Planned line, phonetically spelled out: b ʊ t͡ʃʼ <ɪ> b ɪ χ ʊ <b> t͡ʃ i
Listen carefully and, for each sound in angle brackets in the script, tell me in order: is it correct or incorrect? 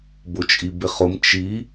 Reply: incorrect: i, incorrect: m

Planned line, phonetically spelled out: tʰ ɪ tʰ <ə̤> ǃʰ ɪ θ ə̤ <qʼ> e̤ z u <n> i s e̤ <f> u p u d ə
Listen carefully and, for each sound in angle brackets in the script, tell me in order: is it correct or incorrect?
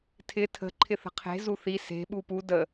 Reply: correct, incorrect: qʰ, incorrect: θ, incorrect: ɓ

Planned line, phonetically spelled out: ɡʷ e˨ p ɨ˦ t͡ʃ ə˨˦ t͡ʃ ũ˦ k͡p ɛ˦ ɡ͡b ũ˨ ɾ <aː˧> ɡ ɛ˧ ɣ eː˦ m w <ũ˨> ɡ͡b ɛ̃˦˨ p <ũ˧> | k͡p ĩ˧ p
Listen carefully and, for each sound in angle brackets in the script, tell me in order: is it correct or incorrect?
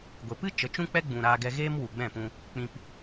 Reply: correct, incorrect: u˨, correct

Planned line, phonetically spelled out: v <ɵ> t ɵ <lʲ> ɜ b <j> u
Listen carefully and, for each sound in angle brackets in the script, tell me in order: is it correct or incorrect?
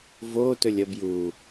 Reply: incorrect: o, correct, correct

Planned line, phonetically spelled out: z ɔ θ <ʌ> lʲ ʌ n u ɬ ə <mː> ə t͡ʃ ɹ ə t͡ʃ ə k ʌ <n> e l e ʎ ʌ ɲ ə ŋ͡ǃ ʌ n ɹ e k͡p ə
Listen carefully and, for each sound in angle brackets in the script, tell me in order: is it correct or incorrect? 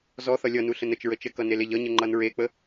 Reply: correct, incorrect: n, correct

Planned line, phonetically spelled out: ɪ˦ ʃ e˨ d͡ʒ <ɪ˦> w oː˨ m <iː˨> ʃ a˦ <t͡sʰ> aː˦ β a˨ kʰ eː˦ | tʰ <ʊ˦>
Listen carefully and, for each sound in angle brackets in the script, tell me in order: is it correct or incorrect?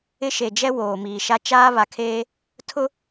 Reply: incorrect: ɛ˦, correct, incorrect: t͡ʃ, correct

